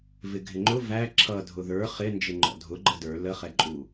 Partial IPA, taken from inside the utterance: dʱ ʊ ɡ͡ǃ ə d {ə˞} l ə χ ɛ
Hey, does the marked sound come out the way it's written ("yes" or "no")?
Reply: yes